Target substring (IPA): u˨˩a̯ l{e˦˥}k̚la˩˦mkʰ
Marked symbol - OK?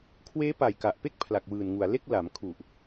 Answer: no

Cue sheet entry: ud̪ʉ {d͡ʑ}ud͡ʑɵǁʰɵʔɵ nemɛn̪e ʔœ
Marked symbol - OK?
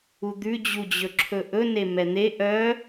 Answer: yes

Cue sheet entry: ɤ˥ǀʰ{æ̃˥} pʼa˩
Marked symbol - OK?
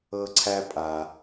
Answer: no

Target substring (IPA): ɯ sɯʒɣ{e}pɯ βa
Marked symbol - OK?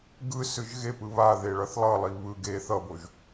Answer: yes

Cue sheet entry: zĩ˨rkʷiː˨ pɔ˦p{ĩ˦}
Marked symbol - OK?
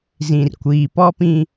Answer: yes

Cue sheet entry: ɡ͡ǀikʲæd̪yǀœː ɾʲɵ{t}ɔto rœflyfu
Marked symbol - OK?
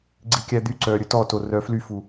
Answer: yes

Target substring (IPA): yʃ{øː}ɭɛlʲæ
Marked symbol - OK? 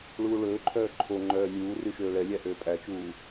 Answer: yes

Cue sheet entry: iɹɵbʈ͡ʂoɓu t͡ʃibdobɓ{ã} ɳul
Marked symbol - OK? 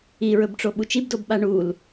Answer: no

